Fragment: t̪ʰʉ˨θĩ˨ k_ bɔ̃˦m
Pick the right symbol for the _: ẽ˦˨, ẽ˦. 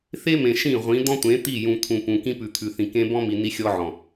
ẽ˦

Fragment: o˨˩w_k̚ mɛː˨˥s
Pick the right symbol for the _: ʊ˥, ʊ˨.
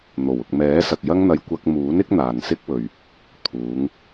ʊ˨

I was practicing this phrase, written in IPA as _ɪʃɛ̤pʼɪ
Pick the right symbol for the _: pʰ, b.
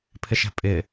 pʰ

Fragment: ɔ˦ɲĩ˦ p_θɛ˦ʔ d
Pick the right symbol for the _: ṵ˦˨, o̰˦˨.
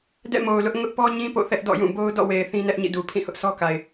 o̰˦˨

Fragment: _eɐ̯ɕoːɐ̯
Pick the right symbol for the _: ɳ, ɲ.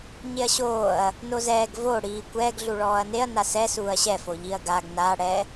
ɲ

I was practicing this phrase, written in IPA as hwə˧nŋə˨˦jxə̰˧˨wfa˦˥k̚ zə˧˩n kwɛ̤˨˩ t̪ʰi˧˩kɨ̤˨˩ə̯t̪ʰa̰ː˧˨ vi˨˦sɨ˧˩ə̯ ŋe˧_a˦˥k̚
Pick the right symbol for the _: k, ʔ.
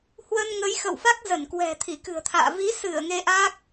ʔ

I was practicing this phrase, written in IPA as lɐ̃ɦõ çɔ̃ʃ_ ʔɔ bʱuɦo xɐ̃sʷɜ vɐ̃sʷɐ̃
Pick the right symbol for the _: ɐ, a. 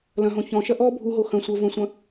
ɐ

